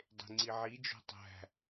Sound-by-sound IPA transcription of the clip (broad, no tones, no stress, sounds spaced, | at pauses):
dˤ e̤ ŋ͡ǀ i ʕ i d͡ʒ o̤ tˤ æ̤